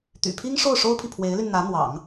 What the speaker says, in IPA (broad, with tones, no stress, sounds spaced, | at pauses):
t̪ y̰˨˩ pʰ i˥ ŋ ʂ o˥˩ ʊ̯ ʂ o˥ ʊ̯ pʰ i˨ pʰ w e˧˥ ɪ̯ l y˧ n n̪ ä˧˥ n̪ w ɑ̰˨˩˦ ŋ